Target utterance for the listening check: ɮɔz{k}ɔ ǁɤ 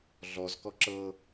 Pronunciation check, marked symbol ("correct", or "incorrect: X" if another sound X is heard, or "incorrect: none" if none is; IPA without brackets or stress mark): correct